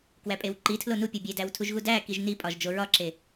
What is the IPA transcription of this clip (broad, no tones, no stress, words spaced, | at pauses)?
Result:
kwæpʼewǃitʰlo nupʲo bʲedæw tʰuʒɣudækiʒ nipʼɒʒ d͡ʒoɹɒǁe